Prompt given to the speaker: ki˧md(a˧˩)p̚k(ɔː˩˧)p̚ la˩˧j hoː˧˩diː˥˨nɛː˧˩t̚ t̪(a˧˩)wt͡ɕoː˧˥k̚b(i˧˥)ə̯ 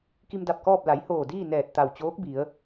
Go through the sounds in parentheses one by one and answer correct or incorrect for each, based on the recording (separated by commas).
correct, incorrect, correct, incorrect